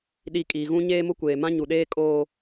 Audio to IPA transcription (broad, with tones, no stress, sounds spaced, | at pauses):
ɗ i˨ kʼ iː˨ ɣ ũ˦ ɲ eː˦ m ʊ˦ kʷ eː˨ m ã˦ ɲ u˨ ɗ eː˦ kʼ oː˦